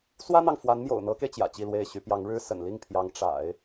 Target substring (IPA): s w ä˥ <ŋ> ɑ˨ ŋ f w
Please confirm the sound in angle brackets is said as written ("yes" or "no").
no